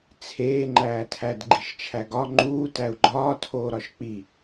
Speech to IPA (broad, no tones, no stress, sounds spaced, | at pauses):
t͡sʰ eː ŋ͡ǃ æː tʰ æ d ɡ͡ǃ i ʃ t͡ʃʰ æ ɡ ɒ ŋ͡ǃ uː t æ u̯ ɡ͡ǃ ɒː tʰ oː ɾ ɒ ʃ k͡p i